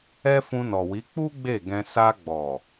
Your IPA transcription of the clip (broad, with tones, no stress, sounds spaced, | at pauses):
ɛ˦ f ũ˧ n ɔ˨ w i˨˦ k͡p u˦ ɡ͡b e˦˨ ɡ ɛ̃˧ s a˧ ɡ͡b ɔ˨